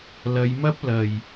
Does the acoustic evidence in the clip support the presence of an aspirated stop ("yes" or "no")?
no